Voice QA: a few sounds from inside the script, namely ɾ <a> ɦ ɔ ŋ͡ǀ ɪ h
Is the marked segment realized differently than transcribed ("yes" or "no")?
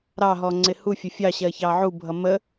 yes